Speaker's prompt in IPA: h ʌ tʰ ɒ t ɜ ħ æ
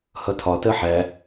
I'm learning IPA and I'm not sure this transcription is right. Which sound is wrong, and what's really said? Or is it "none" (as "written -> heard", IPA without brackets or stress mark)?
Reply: none